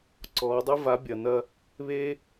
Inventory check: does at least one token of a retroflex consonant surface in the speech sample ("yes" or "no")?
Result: no